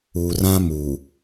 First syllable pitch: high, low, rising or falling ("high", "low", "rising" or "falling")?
low